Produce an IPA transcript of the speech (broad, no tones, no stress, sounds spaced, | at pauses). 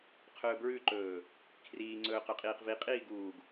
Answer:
qʰ ɵː b ɹ ʉ ǃ ɵː | kʰ r iː ŋ͡ǀ ɵː q ɵ qʼ iː q v i qʼ iː ɡ uː ɡ